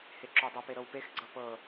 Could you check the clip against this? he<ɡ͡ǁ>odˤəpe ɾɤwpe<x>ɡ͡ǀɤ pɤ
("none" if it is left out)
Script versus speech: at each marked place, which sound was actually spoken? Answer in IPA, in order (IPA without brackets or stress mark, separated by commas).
ǁ, x